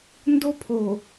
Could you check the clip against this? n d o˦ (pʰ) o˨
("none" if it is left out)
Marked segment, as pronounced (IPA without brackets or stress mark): pʰ